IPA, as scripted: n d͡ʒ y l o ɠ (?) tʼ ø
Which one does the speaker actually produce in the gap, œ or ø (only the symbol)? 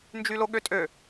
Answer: ø